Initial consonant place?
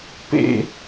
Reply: labial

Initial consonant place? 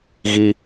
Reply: velar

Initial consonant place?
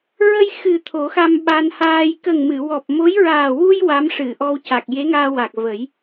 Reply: alveolar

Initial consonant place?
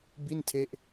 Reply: labial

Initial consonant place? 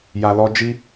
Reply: palatal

